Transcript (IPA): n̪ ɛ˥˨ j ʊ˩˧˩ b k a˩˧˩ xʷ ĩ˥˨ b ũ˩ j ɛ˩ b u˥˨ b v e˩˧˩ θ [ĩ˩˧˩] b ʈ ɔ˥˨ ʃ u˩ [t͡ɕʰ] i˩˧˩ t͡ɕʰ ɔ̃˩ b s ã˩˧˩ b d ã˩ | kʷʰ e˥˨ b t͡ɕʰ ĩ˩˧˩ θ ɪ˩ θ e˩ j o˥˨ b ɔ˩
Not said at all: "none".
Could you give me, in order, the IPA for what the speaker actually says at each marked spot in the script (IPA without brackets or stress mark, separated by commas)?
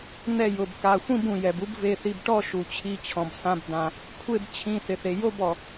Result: i˩˧˩, t͡ɕʰ